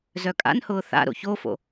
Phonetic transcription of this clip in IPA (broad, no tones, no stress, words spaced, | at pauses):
zœkʼa̰nhʊː θa̰ ɾo̰çofo̰